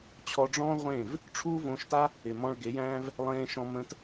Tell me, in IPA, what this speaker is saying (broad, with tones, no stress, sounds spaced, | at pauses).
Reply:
t͡ɕʰ ɔ˧ ɖ͡ʐ ɔ̃ː˦ ʁʷ ẽː˦˨ v | ʈ͡ʂʰ uː˦ v õ˧ ʃ t a˦ | ɪ˨ m ɔ̃˧ ɭ ɡ e˨˦ j æ̃ː˦ v | lˠ ẽː˧ ʃ ɔ̃˧ m ə̃˧ t